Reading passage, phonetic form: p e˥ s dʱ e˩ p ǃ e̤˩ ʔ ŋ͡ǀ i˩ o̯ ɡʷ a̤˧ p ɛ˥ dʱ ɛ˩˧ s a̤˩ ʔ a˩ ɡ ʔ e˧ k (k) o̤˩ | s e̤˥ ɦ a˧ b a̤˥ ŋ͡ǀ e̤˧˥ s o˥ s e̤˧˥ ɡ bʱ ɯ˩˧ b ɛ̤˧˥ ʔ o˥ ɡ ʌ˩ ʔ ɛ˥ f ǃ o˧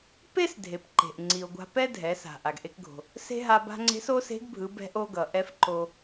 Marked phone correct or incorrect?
incorrect